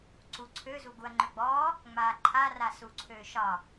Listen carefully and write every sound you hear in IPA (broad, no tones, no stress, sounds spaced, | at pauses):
ǀ u ǀʰ ø z u ɡ u ɐ̯ ŋ͡ǃ ø ɡ͡b ɔː | ŋ͡m aː ǃʰ a r a s u ǀʰ øː ʃ ɒ